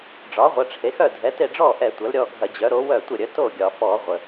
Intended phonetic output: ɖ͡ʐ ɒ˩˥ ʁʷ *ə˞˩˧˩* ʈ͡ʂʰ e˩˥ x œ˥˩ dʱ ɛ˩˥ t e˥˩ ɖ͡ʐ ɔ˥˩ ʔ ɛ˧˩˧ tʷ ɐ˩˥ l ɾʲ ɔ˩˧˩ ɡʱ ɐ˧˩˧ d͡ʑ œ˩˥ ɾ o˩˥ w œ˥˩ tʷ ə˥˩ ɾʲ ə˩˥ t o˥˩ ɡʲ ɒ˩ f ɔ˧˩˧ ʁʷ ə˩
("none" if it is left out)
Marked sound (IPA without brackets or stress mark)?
ɐ˩˧˩